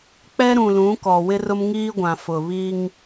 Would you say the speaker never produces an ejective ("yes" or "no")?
yes